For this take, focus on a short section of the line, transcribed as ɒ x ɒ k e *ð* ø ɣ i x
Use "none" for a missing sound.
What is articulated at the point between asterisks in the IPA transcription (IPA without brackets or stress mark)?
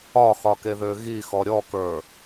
ð